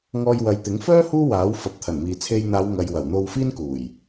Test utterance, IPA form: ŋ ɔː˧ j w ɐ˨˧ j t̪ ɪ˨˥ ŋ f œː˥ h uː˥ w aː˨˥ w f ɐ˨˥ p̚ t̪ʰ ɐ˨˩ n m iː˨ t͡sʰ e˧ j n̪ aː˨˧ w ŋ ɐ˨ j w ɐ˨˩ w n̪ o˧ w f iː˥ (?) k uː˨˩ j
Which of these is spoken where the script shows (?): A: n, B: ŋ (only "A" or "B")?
A